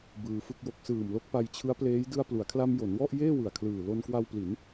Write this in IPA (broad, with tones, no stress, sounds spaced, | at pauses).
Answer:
b ɯː˧ f ɯ˥˩ k̚ j o˦˥ k̚ s ɯː˨˩ m l o˦˥ k̚ p a˧ j t͡ɕʰ ɯ˦˥ a̯ p l eː˦˥ j d ɯ˧ a̯ p l u˩˦ a̯ kʰ l a˧ m j o˩˦ n w ɔ˥˩ ʔ j eː˥˩ w ɯ˨˩ a̯ kʰ l ɯː˨˩ l o˧ n k w a˧ w p l i˩˦ n